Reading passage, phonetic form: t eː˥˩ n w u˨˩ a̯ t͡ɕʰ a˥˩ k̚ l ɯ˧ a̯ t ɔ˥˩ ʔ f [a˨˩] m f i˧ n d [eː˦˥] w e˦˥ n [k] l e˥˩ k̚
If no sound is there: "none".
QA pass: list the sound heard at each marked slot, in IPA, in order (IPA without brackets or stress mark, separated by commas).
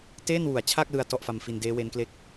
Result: a˧, eː˦˥, k